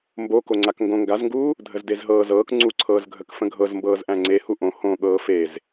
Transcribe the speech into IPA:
m b o k o ŋ͡ǀ a k ŋ ɡ õ ŋ ɡ a z ŋ ɡ uː | dʱ ə z d e z ɦ ɤː z ɤː k ŋ͡ǀ u ǀʰ ɤː z ɡʱ ə k f ə̃ ɡʱ ɤ z m b ɤː z ʔ æ̃ ŋ͡ǀ e h u ʔ õ h õ ɠ ɤː f e z

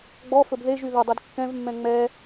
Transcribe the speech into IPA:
ɡ͡b ɔ f ɵ b ð e ʒ y ð ʊ dˤ i d kː ɛ̃ v mː ɛ̃ ŋ͡m ɛ

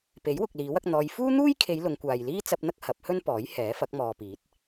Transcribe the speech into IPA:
p e˨˥ j w ʊ˨ k̚ l iː˨˥ w ɐ˧ k̚ n̪ ɔː˧ j f uː˥ n̪ uː˥ j kʰ e˨˧ j l ʊ˨˧ ŋ kʷ aː˨ j l iː˥ t͡s ɐ˧ p̚ n̪ ɐ˥ k̚ h ɐ˨˥ p̚ h ɵ˥ n p ɔː˨˥ j h ɛː˨˥ f ɐ˨˥ k̚ m ɔː˨ p iː˨˥ t̚

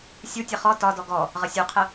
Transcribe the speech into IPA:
sʲ u tʲ ʌ χ ɔ t ɒ d ɔ ɡ ɔ | ʁ ə sʲ u qʰ ə

